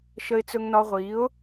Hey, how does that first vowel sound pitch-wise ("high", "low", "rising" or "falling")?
high